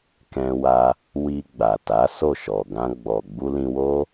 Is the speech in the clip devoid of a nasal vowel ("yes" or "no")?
no